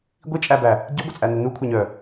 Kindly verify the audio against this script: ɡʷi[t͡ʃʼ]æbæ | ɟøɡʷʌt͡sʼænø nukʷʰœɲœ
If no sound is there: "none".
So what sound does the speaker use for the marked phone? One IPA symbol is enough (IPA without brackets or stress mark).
t͡ʃʼ